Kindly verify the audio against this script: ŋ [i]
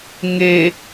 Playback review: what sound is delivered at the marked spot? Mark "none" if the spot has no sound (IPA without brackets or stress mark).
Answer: e